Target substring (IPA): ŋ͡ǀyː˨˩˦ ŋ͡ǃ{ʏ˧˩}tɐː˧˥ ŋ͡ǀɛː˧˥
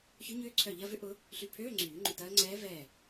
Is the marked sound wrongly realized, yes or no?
no